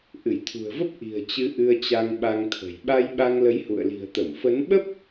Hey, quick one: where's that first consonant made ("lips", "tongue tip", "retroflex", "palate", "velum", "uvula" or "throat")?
throat